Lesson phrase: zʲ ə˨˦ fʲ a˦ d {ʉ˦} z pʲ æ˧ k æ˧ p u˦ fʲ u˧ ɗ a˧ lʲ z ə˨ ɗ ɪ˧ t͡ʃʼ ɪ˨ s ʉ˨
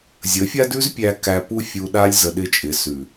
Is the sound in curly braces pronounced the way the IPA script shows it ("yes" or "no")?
yes